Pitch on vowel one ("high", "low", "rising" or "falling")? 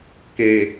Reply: low